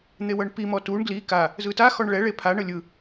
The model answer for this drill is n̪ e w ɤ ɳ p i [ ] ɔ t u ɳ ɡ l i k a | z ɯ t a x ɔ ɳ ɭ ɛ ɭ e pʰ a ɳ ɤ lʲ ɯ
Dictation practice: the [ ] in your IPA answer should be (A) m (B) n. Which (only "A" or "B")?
A